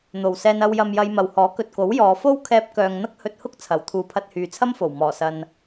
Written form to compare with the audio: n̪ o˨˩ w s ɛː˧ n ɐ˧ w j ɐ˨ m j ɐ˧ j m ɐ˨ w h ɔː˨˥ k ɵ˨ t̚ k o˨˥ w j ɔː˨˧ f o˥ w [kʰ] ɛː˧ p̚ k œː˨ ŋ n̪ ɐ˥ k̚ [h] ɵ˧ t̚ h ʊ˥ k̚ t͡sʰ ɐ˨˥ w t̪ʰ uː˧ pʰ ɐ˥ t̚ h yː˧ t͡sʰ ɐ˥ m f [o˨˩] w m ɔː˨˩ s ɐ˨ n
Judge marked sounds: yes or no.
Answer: yes, yes, yes

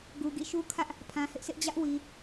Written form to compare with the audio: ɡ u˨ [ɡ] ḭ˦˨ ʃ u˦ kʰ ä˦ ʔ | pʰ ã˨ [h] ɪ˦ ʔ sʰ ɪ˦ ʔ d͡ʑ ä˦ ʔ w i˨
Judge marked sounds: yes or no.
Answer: yes, yes

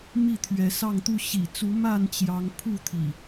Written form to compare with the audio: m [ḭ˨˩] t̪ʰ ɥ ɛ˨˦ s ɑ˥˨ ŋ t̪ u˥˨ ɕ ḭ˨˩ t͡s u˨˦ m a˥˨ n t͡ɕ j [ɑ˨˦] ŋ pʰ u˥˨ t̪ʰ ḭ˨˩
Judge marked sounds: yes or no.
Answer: no, yes

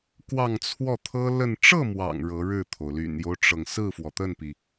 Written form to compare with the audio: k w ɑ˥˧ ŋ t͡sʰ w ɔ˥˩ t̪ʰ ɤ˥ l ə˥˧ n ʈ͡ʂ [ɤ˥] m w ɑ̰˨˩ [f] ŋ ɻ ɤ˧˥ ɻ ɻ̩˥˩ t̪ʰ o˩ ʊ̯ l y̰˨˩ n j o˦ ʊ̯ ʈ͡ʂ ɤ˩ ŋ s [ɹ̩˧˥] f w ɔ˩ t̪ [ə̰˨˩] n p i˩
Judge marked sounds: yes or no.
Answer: no, no, no, no

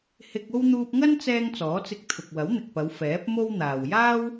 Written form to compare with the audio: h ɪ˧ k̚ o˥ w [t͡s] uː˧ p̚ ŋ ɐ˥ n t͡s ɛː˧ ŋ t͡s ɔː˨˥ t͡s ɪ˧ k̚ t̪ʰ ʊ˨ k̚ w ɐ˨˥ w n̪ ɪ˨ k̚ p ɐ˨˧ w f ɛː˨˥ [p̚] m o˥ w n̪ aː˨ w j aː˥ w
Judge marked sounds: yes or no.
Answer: no, yes

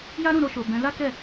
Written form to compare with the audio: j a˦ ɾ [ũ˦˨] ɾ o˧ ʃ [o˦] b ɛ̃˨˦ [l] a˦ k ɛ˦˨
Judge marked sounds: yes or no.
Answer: yes, no, yes

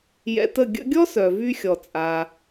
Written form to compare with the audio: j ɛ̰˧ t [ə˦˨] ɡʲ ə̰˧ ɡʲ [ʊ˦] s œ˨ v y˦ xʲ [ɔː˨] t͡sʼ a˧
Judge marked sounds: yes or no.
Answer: yes, no, no

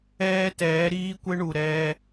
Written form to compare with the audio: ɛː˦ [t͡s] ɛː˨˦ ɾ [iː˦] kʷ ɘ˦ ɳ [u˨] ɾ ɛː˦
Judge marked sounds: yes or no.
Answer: no, yes, yes

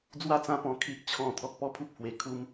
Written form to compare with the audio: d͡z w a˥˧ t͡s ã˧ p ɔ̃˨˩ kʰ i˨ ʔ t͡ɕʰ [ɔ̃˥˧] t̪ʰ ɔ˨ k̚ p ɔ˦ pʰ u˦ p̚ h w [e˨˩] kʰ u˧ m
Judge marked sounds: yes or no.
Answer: no, yes

